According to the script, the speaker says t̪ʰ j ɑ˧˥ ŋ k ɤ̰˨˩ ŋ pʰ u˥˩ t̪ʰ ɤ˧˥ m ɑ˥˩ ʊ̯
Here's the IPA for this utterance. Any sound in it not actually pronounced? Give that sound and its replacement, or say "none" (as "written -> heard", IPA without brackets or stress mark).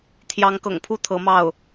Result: none